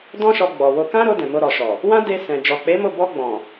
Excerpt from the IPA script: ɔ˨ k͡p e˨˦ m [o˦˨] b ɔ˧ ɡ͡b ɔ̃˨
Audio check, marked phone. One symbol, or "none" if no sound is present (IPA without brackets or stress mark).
o˦˨